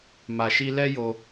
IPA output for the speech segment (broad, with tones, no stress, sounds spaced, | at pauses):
m a˧ ʃ i˦ l ɛ˦ j o˧